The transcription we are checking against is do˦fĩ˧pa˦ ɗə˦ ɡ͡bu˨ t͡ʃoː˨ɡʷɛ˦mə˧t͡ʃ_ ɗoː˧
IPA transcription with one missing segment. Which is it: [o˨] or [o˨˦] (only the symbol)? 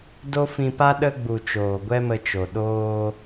o˨